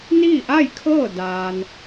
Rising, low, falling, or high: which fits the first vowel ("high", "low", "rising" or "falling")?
falling